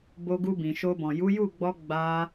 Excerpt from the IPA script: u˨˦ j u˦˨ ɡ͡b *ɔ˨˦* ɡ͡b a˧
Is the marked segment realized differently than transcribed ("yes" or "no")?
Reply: yes